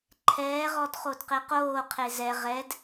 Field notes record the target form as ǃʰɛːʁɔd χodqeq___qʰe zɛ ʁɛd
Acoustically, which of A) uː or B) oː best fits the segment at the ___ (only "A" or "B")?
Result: B